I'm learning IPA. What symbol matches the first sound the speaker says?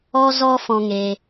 ɔ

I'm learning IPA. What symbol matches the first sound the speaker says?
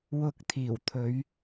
w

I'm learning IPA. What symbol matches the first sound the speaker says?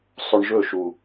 sˤ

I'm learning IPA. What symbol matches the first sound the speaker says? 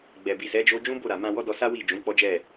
ɡ͡b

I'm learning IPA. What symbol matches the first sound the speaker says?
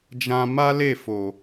d͡ʒ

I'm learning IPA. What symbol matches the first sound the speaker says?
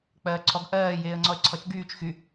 k͡p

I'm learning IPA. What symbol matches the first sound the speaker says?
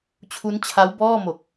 t͡ɕʰ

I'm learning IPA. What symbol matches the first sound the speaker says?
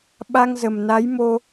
ɓ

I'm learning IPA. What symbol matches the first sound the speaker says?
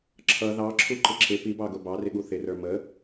ǁʰ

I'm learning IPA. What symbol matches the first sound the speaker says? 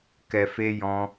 k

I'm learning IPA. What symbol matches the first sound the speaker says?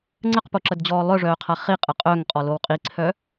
ŋ͡ǀ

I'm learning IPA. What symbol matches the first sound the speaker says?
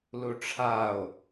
l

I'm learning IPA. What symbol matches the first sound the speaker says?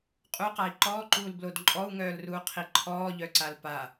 qʼ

